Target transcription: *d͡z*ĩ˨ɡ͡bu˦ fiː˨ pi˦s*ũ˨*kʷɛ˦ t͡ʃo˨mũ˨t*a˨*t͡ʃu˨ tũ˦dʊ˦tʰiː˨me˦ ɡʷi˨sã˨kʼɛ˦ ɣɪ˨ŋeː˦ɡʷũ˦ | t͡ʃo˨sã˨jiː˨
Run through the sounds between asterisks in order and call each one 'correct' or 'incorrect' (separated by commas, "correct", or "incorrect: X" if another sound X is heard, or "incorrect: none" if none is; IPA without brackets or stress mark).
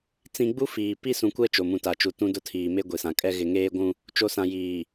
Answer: incorrect: t͡s, correct, correct